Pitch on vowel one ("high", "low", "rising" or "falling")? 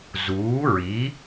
rising